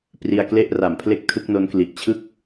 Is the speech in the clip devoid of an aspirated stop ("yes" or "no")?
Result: no